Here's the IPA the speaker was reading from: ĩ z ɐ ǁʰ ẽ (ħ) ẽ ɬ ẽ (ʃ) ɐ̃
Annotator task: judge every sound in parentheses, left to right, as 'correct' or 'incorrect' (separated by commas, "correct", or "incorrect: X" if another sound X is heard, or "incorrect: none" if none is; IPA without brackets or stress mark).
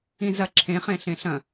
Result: incorrect: χ, incorrect: ɬ